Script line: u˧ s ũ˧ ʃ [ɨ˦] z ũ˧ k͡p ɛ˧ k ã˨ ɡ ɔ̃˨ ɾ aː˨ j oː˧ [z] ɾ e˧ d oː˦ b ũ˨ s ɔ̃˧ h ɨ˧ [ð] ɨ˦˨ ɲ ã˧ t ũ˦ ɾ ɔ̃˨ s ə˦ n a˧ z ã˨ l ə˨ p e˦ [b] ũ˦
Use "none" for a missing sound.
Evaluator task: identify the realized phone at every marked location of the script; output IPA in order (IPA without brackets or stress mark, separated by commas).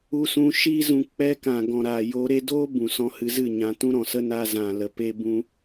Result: i˦, none, z, b